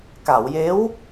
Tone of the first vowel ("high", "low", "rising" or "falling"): low